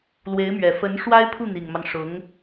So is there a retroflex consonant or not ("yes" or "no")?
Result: yes